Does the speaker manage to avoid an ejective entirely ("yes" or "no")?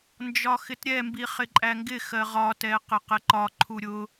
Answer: no